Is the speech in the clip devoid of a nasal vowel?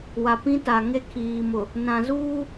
no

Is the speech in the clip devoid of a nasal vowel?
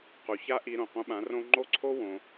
no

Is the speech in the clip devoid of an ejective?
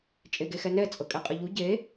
no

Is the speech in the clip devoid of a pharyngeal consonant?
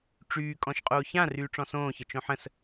no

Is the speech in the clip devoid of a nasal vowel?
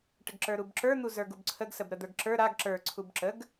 yes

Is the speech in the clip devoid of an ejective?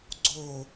yes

